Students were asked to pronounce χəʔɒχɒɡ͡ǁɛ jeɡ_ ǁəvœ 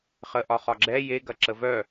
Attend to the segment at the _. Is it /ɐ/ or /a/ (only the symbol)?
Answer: ɐ